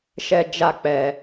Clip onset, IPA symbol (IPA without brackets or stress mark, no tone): ʃ